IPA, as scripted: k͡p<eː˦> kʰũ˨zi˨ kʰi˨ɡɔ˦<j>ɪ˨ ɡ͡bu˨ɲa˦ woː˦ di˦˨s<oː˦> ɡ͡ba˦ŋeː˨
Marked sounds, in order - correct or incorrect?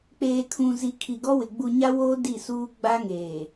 incorrect, incorrect, incorrect

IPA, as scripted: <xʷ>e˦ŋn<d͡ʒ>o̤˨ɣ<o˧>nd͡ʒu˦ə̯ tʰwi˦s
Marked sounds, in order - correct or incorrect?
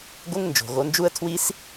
incorrect, correct, correct

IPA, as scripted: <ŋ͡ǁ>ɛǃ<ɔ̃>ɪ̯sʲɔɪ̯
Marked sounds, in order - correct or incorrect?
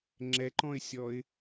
correct, correct

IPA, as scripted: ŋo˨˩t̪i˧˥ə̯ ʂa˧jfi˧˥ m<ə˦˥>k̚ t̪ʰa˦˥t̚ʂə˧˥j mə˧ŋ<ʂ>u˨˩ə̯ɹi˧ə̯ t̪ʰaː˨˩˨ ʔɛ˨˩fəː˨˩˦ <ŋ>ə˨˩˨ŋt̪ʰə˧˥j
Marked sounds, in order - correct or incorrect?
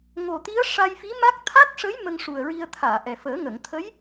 incorrect, correct, correct

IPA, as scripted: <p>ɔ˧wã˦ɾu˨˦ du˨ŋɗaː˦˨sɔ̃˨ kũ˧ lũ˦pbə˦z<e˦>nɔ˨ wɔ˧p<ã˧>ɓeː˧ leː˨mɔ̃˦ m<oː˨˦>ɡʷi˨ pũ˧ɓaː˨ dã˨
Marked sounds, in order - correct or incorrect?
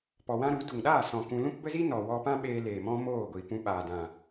correct, incorrect, incorrect, incorrect

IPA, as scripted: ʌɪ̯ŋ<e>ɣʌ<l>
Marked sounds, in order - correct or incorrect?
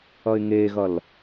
correct, correct

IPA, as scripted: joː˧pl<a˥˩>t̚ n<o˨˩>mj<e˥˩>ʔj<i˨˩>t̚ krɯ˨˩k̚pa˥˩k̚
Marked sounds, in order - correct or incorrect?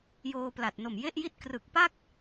incorrect, correct, correct, incorrect

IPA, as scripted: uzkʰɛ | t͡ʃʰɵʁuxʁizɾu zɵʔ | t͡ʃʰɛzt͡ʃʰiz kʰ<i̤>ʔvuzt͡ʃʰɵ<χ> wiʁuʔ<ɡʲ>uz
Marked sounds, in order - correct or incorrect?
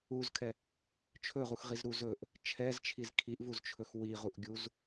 incorrect, incorrect, correct

